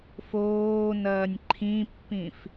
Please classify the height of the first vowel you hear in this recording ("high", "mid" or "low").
mid